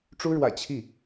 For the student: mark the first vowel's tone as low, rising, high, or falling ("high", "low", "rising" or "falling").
high